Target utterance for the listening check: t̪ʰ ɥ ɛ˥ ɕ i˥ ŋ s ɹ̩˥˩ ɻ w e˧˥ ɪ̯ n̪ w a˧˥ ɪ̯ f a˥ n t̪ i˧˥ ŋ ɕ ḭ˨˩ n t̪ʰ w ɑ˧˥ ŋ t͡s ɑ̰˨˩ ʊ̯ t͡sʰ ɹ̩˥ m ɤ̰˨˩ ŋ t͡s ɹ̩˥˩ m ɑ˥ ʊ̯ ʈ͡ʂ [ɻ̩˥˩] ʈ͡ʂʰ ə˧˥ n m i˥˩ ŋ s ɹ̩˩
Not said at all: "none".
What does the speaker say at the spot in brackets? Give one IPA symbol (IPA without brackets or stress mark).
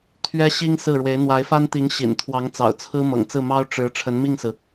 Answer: ɻ̩˧˥